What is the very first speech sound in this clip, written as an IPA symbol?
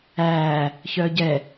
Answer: æː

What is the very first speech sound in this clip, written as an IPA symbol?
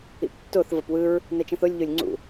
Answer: ḭ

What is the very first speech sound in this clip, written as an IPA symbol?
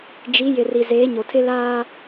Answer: d͡ʒ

